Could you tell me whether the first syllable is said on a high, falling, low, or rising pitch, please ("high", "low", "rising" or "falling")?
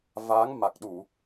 rising